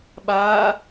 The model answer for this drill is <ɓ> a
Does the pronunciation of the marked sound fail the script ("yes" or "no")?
no